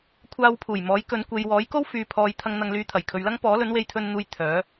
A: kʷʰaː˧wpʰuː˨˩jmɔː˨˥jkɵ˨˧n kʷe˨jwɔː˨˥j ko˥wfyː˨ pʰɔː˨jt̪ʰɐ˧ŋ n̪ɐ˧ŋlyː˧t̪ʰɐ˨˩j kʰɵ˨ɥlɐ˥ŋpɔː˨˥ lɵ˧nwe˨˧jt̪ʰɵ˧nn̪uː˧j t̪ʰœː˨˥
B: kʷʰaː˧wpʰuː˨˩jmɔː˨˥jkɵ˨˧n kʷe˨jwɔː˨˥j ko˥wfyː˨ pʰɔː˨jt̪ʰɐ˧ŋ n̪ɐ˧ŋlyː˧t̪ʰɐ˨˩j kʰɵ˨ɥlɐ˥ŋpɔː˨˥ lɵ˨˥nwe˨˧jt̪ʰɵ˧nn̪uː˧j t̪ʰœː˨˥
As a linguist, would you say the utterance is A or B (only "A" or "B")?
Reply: B